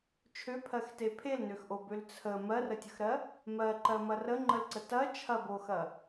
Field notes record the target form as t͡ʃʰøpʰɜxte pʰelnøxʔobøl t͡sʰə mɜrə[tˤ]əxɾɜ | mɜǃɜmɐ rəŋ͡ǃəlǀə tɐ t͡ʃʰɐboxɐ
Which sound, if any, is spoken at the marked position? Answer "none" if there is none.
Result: tʲ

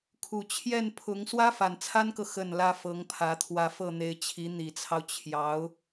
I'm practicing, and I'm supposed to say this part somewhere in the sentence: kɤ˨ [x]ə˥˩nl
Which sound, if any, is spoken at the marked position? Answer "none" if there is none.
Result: x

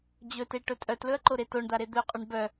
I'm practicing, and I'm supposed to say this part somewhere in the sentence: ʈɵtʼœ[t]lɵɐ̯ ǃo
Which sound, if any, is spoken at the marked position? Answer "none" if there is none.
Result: t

